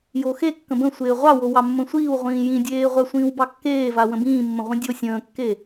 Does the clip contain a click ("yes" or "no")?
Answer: no